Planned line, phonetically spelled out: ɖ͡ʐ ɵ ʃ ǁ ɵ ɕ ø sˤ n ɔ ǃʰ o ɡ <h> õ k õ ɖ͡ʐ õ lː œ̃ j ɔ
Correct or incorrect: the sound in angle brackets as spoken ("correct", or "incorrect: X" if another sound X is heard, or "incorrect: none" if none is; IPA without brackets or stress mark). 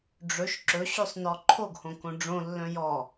correct